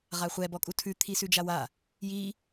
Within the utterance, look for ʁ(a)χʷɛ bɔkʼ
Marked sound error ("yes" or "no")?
no